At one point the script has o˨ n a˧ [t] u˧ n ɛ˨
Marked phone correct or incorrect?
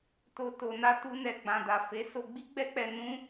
correct